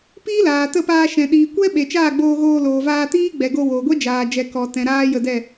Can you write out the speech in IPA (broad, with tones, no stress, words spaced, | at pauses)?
piː˦laː˨tə˦˨paː˧ ʃɛ̃˨ ɗiː˨kʷɛ˦ ɓe˨t͡ʃaː˦˨ɡ͡boː˧ɣoː˧ loː˨vaː˧tiː˦ ɡ͡bɛ˨ɡo˧ wo˨ɡʷɛ˦ d͡ʒaː˨d͡ʒɛ˨ kɔ˨ tɛ̃˨ ɾaː˦jə˧dɛ˦˨